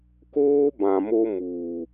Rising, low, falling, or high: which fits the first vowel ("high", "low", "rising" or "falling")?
high